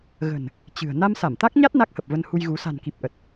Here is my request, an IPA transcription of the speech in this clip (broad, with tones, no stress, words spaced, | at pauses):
ɣə̤˨˩n | t͡ɕɨ̤˨˩ə̯ na˧msa˧˩mt̪a˦˥k̚ɲa˦˥t̚ na˦˥k̚hə˨˩p̚və˧nhu˧j ɣu˨˦ sa̤˨˩nki˨˩p̚ʔə˨˩t̚